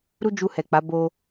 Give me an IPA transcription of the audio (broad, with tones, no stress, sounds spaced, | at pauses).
ɾ u˦ d͡ʒ u˧ h ɛ˨ k͡p a˨˦ b o˧